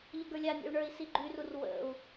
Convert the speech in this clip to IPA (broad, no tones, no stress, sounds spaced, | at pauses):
ʎ ə ɡ ə˞ lʲ a nʲ ḛ u̯ ɳ ə˞ i̯ s i ɡ͡ǃ y r u r w ə̰ u̯